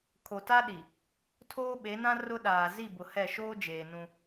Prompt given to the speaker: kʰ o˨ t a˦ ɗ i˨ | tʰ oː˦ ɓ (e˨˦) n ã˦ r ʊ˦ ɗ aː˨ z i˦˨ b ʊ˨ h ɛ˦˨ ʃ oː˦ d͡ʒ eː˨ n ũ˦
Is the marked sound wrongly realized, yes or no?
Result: no